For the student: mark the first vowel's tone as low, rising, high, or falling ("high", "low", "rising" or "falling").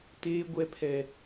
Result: high